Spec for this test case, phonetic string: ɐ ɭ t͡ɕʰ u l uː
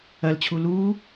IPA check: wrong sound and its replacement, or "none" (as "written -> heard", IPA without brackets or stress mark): ɭ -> l